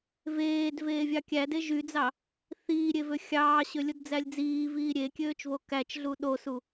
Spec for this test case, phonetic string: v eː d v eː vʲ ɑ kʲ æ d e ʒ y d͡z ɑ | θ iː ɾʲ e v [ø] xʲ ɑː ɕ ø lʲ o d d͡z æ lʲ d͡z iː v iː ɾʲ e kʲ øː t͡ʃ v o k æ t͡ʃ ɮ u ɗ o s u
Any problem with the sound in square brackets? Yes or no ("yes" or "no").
no